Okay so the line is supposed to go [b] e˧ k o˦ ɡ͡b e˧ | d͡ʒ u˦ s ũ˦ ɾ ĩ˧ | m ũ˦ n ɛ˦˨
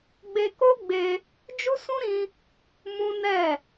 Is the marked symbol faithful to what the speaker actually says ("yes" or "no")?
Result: no